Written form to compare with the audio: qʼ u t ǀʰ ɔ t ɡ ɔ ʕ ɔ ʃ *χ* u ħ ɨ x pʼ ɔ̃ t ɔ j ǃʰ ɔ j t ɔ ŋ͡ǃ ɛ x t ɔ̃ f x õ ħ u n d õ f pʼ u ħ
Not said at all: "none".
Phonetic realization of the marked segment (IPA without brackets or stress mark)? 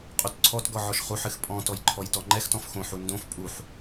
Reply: χ